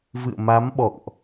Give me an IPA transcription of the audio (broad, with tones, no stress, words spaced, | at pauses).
vɨ̰˧˨ə̯ma˨˦mɓɔ̰˧˨ŋʔ